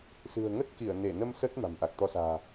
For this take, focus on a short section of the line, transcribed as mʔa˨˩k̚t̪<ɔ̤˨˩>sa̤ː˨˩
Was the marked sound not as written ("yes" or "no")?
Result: yes